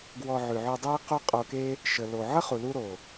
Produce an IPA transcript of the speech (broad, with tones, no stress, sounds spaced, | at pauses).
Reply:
ɡ w ɔ˧ ʕ ʉ˨ ʕ ʉ˧ dˤ e˦ q o˦ qʼ o˧ k e˦ | ʃ ə˨ l o˨ ʕ ə˦ χ u˨ l u˦ ɾ o˨